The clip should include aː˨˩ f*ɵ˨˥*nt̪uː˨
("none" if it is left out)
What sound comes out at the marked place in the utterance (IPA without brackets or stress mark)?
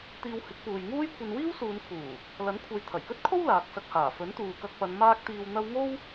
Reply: ɵ˨˥